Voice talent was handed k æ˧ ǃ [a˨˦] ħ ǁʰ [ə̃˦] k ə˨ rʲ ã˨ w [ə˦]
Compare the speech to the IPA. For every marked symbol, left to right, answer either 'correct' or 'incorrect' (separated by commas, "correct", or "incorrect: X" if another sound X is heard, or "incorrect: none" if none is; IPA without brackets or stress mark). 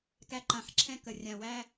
incorrect: ã˨˦, incorrect: ɛ̃˦, incorrect: æ˦